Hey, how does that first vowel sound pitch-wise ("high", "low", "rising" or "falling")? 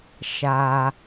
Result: low